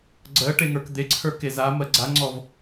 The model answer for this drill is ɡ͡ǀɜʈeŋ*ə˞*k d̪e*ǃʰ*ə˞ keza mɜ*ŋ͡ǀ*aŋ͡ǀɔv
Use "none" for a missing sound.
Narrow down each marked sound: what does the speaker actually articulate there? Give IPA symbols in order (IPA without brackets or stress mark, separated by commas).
ə˞, ǀʰ, ɡ͡ǀ